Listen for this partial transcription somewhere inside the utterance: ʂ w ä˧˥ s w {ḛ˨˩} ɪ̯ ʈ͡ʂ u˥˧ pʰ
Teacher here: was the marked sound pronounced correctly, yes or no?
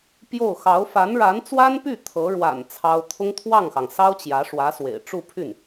yes